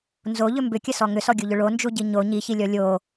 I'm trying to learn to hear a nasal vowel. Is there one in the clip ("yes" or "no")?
no